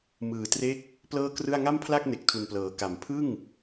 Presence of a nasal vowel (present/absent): absent